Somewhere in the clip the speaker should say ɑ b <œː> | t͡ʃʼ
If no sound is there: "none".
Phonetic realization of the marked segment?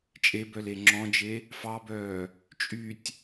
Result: œː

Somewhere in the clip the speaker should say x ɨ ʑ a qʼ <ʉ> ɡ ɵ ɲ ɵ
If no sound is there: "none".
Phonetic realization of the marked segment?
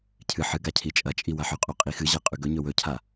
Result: ʉ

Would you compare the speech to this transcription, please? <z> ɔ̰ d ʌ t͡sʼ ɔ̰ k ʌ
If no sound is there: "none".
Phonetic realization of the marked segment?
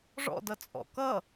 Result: ʐ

